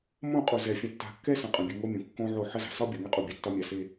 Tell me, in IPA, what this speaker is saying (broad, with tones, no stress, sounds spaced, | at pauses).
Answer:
m õ˦˨ qʼ u˨ z ɛ˨ fʲ ə̃˨ tː a̤˨ kː ɛ˦ s ə̃˨ qʼ ə̃˨ bʲ ɨ˨ ŋ o˦ mʲ õ˨ kː õ˦ ʕ o˦˨ ħ ə˦ z a̤˨ s ɒ˦ bʲ ɒ˨ ŋ ɛ˦ qʼ u˨ bʲ a˨ tː ɒ˦ mʲ a˨ s e˦